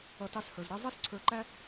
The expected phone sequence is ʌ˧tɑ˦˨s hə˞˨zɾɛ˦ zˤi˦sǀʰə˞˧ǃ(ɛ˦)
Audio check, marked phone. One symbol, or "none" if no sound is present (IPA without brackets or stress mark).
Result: æ˦